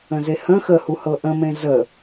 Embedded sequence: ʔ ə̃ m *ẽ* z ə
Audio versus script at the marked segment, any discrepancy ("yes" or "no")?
no